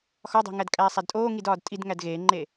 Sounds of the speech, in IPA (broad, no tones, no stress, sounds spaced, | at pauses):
x ɒ dˤ e̤ ŋ æ d kʼ æː sˤ æ d tʼ oː ŋ i d ɒː d tʼ i d ŋ æ d ɣ eː ŋ͡ǃ eː